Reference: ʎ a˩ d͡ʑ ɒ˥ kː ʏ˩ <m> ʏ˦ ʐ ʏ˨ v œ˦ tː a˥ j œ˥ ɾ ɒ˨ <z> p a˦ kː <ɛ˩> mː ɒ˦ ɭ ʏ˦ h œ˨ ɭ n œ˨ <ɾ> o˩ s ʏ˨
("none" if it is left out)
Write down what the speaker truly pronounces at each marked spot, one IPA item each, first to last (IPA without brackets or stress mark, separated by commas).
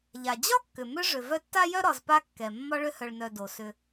m, z, ɛ˩, d